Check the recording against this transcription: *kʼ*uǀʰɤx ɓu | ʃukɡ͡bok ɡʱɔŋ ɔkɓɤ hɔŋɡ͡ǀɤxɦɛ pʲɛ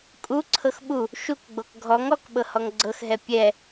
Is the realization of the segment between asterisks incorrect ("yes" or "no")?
no